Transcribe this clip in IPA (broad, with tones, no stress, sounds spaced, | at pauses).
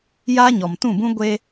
j aː˦ ɲ ɔ˨ m t ũ˦˨ b ũ˦ ɡʷ eː˦